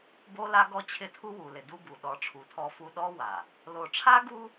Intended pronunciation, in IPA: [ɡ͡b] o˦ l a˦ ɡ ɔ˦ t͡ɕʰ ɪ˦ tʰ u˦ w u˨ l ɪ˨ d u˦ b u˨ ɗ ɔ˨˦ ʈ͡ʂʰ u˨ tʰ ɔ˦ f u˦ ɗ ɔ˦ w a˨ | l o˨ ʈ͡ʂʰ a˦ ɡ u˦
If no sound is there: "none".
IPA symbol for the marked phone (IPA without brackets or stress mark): b